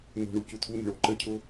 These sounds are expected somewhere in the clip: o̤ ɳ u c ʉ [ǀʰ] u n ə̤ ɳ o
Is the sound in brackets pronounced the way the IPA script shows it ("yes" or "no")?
no